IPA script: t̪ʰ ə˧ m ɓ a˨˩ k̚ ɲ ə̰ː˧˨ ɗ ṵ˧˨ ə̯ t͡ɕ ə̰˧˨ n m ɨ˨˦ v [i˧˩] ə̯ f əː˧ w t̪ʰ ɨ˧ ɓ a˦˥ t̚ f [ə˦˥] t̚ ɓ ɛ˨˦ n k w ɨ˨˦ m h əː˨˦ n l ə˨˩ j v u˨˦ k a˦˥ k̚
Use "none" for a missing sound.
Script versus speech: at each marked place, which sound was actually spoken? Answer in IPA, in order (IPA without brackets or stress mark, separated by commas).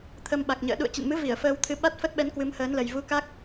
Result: i˧˩, ə˦˥